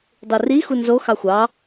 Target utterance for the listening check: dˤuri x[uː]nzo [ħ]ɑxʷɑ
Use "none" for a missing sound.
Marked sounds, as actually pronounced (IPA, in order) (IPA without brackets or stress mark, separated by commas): u, x